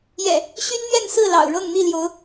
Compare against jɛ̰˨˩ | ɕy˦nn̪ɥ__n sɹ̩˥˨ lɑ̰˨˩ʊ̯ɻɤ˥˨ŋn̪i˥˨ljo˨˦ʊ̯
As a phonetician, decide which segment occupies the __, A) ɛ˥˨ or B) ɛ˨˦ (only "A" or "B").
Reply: A